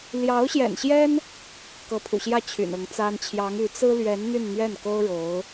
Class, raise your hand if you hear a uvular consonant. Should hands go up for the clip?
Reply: no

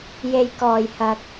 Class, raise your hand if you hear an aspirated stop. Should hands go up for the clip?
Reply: no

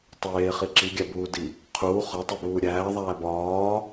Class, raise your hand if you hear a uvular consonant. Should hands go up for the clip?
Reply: yes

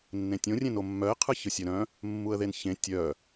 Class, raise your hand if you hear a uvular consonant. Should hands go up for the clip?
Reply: yes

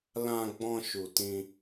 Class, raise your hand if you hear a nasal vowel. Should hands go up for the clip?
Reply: yes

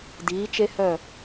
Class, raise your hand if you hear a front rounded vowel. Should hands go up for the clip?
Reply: yes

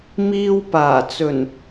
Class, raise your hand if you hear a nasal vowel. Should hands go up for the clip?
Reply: no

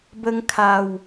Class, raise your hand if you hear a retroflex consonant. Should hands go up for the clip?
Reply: no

